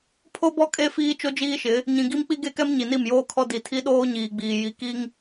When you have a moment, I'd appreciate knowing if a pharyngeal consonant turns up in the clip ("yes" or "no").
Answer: no